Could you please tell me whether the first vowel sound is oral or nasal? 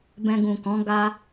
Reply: nasal